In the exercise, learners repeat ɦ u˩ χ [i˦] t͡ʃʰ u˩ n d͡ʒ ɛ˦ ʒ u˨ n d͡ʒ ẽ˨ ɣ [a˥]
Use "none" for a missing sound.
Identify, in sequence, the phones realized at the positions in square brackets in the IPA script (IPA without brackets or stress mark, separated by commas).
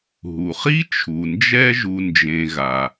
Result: i˥, a˩